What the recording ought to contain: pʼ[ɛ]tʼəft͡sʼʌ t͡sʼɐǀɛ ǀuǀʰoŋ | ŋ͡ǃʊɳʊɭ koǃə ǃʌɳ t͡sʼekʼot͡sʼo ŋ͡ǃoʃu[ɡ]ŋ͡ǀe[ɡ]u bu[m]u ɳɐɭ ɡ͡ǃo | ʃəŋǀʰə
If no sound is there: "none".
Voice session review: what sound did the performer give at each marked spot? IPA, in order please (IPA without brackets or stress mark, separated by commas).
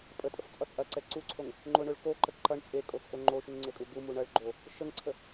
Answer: ə, ŋ, kʼ, m